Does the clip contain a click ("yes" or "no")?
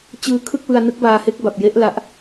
no